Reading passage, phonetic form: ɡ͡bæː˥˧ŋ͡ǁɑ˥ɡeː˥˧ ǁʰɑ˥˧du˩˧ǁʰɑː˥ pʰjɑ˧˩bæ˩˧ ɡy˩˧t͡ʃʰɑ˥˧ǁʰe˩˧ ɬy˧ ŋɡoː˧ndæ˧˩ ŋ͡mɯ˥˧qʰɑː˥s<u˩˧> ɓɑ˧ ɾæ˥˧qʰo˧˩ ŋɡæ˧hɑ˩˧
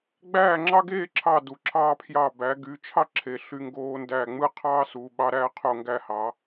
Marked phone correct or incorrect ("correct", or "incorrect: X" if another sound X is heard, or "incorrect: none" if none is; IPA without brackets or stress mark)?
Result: correct